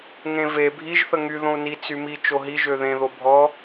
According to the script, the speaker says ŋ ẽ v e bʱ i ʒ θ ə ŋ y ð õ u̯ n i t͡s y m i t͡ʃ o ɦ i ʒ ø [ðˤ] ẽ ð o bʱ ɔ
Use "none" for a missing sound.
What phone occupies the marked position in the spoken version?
ð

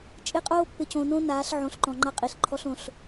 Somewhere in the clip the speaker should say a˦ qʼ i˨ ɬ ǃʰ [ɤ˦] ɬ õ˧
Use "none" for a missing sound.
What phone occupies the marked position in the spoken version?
ɔ˦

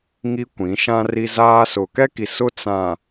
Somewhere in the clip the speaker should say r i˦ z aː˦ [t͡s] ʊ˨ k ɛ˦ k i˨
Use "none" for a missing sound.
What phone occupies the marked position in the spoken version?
s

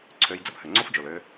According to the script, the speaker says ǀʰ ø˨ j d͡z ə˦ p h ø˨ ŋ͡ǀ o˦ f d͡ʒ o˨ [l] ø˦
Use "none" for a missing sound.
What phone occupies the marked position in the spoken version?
l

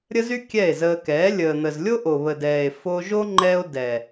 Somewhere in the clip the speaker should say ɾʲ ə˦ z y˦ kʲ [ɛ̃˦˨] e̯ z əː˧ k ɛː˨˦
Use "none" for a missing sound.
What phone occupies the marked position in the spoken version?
ɛ˦˨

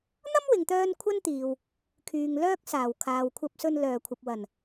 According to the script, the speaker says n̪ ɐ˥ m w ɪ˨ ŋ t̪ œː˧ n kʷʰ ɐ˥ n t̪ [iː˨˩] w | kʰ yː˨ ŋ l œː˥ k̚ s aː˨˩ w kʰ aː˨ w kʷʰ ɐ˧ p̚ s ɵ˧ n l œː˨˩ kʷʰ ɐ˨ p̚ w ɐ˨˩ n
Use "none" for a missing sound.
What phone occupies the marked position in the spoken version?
iː˨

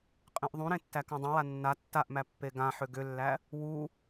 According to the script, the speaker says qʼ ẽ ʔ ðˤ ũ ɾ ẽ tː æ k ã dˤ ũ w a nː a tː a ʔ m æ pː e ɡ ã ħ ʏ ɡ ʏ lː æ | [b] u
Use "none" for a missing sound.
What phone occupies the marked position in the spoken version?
w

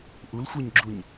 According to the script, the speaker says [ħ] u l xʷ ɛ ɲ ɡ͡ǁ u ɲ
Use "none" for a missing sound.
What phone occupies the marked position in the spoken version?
ʔ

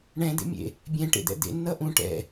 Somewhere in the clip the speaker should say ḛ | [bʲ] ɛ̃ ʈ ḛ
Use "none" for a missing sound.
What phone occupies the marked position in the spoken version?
bʲ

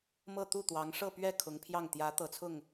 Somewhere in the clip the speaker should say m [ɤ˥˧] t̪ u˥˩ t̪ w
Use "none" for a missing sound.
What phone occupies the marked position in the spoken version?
ɤ˥˧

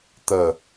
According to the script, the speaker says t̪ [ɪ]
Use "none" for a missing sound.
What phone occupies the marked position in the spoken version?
ə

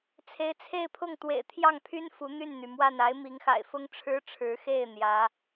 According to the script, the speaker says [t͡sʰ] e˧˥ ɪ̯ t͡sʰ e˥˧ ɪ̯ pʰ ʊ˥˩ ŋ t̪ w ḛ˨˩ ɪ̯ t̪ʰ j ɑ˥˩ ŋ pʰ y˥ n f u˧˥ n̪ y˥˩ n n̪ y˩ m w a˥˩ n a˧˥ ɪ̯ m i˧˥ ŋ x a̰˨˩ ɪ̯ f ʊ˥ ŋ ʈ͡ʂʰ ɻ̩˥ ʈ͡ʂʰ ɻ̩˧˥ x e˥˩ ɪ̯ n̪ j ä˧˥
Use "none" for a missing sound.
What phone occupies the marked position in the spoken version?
t͡sʰ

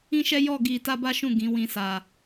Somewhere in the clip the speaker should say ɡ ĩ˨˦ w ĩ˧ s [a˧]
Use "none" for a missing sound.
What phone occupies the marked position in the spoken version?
a˨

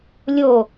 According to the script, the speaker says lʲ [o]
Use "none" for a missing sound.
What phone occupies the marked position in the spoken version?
o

